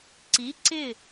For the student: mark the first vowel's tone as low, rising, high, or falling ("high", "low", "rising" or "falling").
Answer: rising